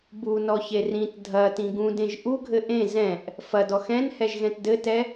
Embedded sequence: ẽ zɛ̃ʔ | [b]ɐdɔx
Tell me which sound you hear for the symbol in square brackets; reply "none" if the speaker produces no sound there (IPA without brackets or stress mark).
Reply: f